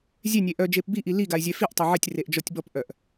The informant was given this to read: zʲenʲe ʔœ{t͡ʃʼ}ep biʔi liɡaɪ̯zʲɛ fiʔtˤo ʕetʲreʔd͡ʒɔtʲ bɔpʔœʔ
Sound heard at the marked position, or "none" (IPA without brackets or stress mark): d͡ʒ